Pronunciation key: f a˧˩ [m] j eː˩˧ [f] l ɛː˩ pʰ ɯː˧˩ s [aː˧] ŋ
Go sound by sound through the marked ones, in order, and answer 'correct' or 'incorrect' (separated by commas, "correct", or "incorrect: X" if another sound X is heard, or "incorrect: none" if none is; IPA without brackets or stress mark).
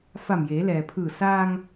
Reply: correct, incorrect: none, correct